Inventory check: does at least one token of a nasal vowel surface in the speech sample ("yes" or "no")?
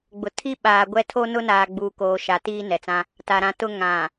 yes